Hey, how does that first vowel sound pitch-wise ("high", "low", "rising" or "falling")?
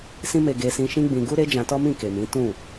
high